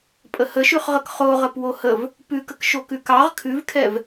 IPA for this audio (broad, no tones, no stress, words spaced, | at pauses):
pʼəhəʃʉχʁək χoʁəp wohəv | pʉkək ʃokʉkɑʁ kʰʉvkʰɛv